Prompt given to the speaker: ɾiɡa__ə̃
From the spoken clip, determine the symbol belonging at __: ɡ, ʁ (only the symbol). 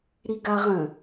ʁ